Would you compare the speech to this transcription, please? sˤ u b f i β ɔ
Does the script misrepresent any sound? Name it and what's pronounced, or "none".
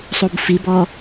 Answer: β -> b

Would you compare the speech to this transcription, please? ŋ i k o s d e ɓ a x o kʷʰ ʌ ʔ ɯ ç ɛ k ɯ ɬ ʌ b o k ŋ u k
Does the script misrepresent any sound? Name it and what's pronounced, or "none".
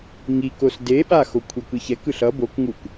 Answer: ʔ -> k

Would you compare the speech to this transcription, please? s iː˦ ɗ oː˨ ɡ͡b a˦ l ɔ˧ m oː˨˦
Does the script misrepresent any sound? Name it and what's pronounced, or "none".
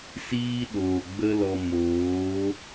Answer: a˦ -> ə˦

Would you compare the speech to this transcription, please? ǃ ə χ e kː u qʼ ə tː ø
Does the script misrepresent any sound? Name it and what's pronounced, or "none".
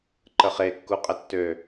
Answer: none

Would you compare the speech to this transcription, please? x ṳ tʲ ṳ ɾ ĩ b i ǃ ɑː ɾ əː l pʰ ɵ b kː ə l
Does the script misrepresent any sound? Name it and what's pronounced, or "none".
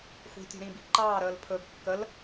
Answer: none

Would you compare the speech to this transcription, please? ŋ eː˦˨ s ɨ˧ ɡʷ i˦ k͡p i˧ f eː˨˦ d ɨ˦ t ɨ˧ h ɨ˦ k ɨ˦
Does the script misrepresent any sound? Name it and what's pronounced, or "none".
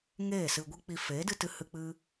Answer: k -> k͡p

